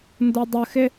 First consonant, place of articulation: alveolar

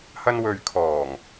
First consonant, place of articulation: glottal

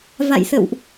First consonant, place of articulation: labial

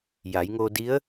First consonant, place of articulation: palatal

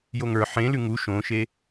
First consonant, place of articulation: palatal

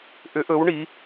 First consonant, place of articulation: glottal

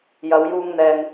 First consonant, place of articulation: palatal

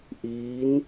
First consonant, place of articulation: glottal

